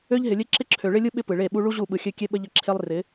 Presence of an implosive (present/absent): present